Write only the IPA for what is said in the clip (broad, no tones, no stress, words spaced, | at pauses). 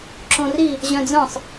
ǁõri | ʑœ̃d͡zœ̃sˤ